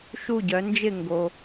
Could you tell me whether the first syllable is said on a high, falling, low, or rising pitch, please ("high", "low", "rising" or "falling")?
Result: falling